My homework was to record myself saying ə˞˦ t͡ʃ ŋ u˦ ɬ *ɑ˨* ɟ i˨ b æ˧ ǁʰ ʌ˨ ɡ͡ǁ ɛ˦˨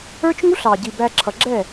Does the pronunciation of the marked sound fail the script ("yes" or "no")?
no